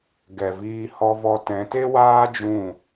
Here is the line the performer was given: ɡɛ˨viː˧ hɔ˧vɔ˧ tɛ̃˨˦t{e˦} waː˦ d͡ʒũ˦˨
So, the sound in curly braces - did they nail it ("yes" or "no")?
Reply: yes